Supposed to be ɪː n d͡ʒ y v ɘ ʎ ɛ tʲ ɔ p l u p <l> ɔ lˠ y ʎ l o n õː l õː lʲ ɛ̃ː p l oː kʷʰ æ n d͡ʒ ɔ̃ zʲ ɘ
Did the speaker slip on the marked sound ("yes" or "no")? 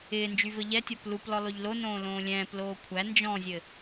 no